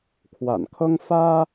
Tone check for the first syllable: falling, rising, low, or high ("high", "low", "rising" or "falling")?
low